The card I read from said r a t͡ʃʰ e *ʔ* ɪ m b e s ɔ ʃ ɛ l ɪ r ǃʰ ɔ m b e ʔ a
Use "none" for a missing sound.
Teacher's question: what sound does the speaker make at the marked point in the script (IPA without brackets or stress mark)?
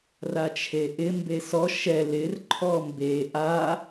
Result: ʔ